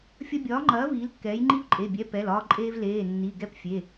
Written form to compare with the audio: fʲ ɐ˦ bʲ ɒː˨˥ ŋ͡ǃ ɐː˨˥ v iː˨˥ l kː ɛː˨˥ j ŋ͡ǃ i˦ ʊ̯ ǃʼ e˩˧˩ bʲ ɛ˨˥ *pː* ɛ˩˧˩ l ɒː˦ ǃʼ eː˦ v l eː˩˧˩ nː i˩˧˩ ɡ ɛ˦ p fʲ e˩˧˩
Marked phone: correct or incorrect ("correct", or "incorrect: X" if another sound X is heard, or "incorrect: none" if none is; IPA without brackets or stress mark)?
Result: incorrect: p